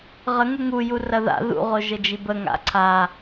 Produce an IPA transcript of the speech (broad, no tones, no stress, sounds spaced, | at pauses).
ʁ ə ŋ u ŋ u j u r ɐ ð a̰ ð ṵ ʁ o ʒ ə d͡ʒ i b ə ŋ a̰ ǀʰ a